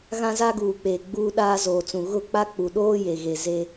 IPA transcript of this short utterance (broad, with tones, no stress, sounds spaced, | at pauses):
ɣ ã˦ z a˦ ɡ uː˨ k͡p eː˨ ɡ͡b uː˦ ɗ aː˦ z oː˨ t͡s ũ˨ ɣ ʊ˦˨ k͡p a˦ k͡p u˨ ɗ oː˦ j e˨ ɣ e˨ z e˦